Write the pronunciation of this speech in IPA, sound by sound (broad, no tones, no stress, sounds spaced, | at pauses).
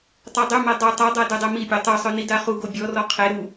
tˤ œ dˤ ø m ɛ dˤ ø tˤ a dˤ a d œ dˤ ɛ m i pʲ ɔ tˤ ø sˤ œ n i d a χ u ɡ o bʲ ɔ r ɔ qʰ e ɾ u